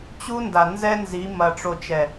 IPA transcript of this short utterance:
t͡ɕu˦nda˨ nzɛ˦ nzi˨˦mɐ˨ ʈ͡ʂo˨t͡ʃɛ˨

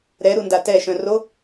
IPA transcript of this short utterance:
ɾɛɾunda tɛʃœ̃ ro

